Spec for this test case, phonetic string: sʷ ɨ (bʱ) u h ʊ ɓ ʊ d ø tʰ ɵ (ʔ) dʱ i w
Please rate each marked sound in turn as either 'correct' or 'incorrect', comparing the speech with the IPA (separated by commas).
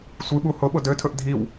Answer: incorrect, correct